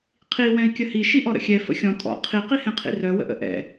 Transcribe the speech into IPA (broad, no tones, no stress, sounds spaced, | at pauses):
qʰ i w ɛ̃ i̯ kʲ ə h i ʃ i ʔ ɔ ɾ ə̰ xʲ ɛ f ə̰ xʲ ɔ̃ tʼ ɔ̰ qʰ i q i h ɛ̃ qʰ ḭ r œ w ə̰ ʔ ə̰ ʔ ɛ̰